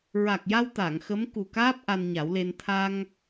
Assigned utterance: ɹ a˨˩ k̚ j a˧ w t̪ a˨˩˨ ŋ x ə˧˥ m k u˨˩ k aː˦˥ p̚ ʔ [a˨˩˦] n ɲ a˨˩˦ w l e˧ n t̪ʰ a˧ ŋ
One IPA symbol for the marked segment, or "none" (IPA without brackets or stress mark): a˧